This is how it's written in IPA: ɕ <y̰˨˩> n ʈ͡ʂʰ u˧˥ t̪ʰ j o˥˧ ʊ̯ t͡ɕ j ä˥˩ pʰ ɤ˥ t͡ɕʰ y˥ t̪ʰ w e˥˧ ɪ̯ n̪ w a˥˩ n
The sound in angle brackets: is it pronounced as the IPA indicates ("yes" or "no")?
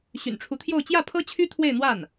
yes